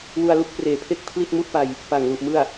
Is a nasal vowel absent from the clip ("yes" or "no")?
yes